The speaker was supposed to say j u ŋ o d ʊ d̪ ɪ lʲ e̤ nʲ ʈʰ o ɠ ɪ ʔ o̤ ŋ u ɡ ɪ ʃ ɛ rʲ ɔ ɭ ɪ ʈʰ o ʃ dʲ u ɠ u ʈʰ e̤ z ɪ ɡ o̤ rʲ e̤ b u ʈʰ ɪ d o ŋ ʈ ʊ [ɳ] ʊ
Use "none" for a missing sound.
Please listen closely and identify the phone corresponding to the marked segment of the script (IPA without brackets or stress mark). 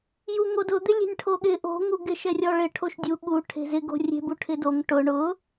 ɳ